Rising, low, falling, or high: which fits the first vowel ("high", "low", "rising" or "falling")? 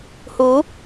rising